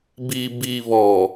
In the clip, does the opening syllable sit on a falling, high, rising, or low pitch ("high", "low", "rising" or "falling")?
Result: low